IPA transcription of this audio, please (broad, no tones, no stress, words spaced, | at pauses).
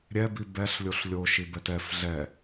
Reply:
ɾʲɛbi bɛɬlʲoɬ lʲoʃibɛt ɛf ɮɛ